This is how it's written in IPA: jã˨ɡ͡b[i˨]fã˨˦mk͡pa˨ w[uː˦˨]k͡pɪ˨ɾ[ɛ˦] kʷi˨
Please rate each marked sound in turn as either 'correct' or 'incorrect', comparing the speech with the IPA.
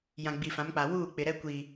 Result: correct, correct, correct

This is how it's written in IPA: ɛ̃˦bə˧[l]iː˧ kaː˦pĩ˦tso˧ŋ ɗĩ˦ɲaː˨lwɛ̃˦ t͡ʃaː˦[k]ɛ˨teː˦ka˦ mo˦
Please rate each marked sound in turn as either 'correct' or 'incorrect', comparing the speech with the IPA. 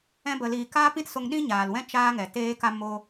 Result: correct, incorrect: ŋ

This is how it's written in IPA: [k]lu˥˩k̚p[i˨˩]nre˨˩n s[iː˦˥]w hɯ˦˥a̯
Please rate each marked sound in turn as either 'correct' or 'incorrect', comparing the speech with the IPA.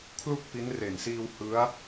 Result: incorrect: kʰ, incorrect: i˦˥, incorrect: iː˧

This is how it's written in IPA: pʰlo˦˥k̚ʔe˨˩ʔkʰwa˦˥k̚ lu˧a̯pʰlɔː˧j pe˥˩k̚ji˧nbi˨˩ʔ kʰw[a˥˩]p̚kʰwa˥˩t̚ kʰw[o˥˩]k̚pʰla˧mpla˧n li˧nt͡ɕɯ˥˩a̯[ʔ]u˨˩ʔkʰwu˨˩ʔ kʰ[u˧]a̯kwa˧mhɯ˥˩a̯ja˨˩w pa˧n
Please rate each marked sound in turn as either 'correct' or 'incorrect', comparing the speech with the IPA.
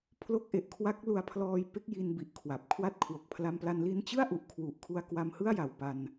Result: incorrect: a˨˩, incorrect: o˨˩, correct, correct

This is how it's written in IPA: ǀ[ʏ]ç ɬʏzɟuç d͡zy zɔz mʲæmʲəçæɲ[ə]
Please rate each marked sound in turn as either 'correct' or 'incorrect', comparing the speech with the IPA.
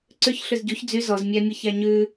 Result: correct, incorrect: ʉ

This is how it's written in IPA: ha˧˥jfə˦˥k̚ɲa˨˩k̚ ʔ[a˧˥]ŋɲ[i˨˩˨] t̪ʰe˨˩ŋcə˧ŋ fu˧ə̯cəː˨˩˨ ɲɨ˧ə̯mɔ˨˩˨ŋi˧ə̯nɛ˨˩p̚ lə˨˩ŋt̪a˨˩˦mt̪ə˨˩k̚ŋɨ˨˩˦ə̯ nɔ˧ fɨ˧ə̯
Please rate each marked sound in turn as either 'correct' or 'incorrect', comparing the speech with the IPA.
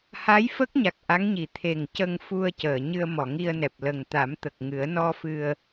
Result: correct, correct

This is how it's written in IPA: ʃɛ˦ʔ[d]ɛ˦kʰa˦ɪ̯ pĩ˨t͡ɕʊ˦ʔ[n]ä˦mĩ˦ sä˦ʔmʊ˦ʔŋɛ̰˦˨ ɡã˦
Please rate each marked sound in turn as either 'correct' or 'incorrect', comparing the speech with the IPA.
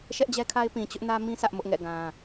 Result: incorrect: d͡ʑ, correct

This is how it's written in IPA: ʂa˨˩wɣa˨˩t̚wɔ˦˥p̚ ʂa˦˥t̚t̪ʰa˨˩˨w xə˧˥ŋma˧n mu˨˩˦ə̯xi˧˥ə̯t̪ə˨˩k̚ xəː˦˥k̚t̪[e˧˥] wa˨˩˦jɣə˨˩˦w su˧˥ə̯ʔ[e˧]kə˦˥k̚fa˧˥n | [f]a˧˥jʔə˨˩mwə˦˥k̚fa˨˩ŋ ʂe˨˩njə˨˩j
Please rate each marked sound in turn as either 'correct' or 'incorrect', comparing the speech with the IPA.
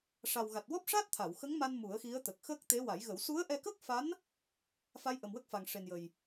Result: correct, incorrect: ɛ˧, correct

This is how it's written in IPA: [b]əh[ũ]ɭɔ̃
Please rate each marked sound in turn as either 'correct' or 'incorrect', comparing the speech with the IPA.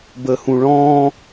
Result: correct, correct

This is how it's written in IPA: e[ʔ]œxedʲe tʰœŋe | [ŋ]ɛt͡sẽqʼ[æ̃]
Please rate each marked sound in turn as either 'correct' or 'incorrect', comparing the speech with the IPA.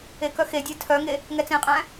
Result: incorrect: k, correct, correct

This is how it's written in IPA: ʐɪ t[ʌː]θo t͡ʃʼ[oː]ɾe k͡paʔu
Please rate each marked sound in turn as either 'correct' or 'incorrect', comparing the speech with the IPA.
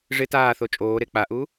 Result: incorrect: aː, correct

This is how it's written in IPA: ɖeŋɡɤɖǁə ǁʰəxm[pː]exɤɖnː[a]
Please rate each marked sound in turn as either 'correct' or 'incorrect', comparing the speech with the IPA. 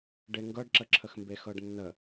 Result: incorrect: b, incorrect: ə

